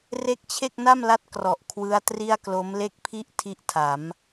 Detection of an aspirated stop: present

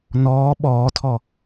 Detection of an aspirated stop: present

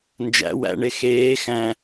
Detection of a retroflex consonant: present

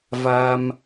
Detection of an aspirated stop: absent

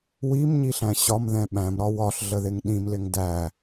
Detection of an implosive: present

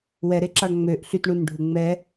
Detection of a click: present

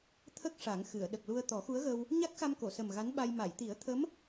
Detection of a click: absent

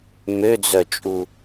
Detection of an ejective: present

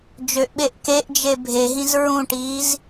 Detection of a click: absent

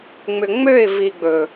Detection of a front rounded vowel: present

